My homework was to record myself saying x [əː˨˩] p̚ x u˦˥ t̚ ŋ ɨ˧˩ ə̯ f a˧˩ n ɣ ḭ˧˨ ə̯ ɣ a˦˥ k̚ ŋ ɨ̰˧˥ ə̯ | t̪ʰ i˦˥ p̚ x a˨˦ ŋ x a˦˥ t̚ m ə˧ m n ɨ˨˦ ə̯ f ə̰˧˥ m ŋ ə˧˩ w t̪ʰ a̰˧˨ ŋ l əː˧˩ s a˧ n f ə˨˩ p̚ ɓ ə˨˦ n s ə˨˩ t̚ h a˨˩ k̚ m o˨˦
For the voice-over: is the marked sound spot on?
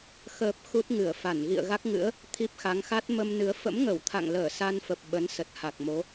yes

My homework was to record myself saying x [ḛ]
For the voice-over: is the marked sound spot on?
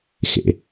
yes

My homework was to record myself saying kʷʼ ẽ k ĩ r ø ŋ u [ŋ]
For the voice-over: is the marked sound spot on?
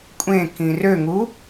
no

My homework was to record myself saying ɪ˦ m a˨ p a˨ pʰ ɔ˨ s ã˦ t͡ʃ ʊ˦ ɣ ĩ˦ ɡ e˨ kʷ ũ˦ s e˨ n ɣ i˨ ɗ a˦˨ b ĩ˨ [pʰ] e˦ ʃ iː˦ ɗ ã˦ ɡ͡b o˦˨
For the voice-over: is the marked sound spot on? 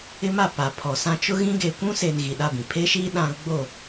yes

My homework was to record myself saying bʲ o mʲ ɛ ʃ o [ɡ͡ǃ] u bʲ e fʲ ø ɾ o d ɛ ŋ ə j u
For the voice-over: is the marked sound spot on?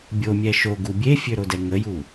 no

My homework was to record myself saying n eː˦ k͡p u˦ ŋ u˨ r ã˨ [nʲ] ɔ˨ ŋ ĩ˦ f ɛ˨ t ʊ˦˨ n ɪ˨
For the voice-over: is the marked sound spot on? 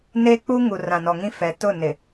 no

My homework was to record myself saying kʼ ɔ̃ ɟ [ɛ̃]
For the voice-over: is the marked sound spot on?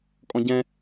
yes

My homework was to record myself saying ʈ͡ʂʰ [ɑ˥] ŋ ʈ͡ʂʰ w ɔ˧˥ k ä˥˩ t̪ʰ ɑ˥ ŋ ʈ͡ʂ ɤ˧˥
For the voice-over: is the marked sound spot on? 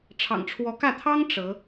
no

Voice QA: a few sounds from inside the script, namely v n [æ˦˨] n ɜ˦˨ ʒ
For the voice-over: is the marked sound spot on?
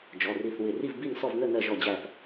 no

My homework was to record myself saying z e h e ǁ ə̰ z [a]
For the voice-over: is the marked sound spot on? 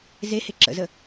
no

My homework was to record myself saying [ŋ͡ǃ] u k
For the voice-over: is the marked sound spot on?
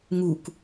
no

